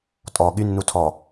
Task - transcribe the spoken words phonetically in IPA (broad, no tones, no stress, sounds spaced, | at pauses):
tʼ ɔ ɠ y nː u tʰ ɔ